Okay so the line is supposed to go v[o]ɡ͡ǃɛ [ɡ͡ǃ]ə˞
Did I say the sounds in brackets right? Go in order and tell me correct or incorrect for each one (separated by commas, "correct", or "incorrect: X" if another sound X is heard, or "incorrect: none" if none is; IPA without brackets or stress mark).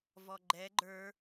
incorrect: ɔ, correct